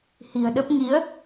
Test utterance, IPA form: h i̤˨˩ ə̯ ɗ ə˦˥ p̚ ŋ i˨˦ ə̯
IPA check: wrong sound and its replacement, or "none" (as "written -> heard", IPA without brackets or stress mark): none